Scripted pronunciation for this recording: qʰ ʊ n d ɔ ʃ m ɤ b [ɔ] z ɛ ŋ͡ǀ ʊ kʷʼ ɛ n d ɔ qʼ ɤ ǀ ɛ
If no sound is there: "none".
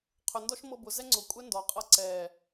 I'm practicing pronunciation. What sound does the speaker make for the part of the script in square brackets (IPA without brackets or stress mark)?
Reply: ʊ